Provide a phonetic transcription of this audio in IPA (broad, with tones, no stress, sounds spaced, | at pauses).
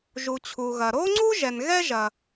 ʒ u˩ t͡ɕʰ u˩ ɣ ɐ˩ ɾ o˥ ŋ͡ǀ u˥ ʒ ɛ˩ n ɣ ɛ˥ ʒ ɐ˩